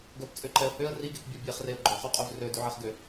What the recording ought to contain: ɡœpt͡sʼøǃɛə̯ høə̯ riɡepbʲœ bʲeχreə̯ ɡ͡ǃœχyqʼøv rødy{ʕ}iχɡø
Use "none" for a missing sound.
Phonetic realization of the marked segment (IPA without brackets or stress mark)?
ʕ